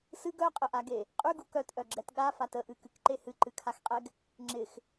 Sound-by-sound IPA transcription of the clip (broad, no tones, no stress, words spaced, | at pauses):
sɨɡ œqʼəʔaɡe | qʼyɡu kœtʔœɡ͡ǁɛt ɠafat əʔɨkɨkǃe hɨǃɨkʰaxqʼɛɡ | ŋ͡ǁɪx